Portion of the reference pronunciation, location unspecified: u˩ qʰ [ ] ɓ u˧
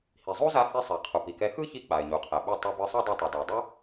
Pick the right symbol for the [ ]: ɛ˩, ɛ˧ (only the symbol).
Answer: ɛ˩